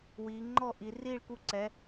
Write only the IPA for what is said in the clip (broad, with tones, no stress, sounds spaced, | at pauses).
w iː˩˧ ŋ͡ǃ ɔ˥˩ ʔ i˩˧ r iː˥˩ ɭ k u˥˩ ǀ ɛ˩˧